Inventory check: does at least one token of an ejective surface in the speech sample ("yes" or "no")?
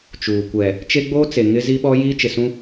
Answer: no